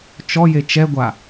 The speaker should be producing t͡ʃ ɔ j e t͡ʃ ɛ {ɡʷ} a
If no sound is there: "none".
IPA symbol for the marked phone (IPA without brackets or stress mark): ɡʷ